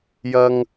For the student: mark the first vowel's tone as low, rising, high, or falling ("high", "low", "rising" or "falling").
high